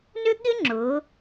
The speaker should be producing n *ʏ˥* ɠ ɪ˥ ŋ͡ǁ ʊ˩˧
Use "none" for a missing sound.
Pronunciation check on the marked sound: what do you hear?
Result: ʏ˥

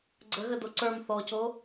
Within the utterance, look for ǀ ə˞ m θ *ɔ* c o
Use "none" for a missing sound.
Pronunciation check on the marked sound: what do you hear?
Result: ɔ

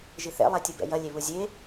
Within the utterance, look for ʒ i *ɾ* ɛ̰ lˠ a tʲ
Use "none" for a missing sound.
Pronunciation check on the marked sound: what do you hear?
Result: θ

